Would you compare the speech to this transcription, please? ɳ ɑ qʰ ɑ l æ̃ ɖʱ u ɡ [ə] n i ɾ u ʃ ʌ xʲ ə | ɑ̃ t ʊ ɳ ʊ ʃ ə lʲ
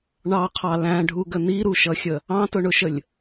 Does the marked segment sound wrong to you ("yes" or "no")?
no